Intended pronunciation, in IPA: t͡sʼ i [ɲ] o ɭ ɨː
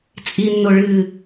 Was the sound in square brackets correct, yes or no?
no